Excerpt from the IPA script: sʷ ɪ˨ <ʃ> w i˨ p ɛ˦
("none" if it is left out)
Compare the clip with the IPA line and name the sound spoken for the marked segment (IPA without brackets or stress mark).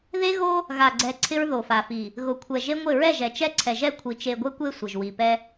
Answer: ʒ